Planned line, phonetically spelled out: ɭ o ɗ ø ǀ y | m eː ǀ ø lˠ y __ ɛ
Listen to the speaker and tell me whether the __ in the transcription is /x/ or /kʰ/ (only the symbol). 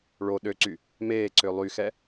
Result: x